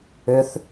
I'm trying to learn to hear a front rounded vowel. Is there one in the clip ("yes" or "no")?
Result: yes